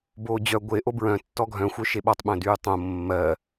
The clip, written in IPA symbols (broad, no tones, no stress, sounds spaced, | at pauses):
b oː d͡ʑ œ ɡʷ e ʔ o b ɹ œ̃ tː ɔ ɡʱ œ̃ xʷ œ ʃ e ɓ ɔ tˤ ɓ œ̃ d yː tˤ õ mː ɜ